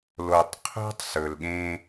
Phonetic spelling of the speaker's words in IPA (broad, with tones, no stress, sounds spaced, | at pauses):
l o˨ tˤ qʰ o̤˦ tˤ s ɵ˨ l ɠ ẽ˦